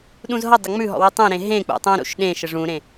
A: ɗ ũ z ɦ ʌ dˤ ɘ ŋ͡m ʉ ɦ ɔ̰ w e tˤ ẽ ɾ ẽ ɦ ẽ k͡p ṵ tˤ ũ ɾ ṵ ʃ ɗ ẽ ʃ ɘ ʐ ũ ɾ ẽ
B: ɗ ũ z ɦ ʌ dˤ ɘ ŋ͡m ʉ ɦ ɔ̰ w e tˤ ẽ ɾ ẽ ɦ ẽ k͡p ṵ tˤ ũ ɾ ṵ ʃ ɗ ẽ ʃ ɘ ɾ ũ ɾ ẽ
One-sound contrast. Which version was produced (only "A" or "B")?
A